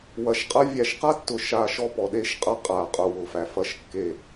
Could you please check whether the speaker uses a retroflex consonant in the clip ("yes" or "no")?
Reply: no